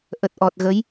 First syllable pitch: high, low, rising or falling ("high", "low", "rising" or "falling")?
low